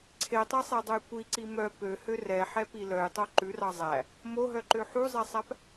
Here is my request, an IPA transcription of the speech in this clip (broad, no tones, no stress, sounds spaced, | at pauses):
ǀʰ e tˤ e sˤ e dˤ ɵ j kʷ i ǀ i m œ p ø h ø r ɛ ħ ɛ p i l œ j tˤ o ǃ ʉ r ɑ zˤ æ | m o ɦ œ ǃ ø ħ u zˤ ɛ sˤ æ p